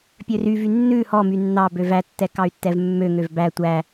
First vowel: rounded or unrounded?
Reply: rounded